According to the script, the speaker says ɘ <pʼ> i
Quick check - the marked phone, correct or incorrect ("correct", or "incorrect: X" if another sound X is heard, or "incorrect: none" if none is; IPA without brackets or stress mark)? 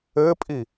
correct